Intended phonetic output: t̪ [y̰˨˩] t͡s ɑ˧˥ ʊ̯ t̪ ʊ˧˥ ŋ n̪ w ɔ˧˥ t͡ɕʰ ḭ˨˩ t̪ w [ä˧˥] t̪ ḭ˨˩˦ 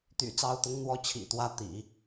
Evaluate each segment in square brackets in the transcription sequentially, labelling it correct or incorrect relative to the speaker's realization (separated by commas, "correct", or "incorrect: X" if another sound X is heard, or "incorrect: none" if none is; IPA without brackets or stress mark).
correct, correct